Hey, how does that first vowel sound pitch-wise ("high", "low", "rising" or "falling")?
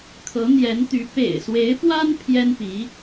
rising